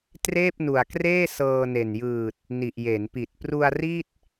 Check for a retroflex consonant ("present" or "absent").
absent